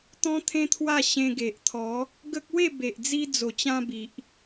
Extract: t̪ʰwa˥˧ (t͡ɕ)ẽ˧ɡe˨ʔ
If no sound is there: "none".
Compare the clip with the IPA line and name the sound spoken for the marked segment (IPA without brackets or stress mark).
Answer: ɕ